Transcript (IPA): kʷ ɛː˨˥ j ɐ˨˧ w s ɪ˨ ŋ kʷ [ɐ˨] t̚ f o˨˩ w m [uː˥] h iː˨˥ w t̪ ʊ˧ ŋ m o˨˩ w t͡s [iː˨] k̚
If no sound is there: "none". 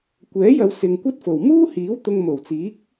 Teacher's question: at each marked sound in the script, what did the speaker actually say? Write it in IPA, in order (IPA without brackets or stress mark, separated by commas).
ɐ˥, uː˥, iː˨˥